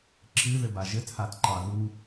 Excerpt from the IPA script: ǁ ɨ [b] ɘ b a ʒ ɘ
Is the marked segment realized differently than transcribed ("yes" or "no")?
yes